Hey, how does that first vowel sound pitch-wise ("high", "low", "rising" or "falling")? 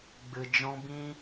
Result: low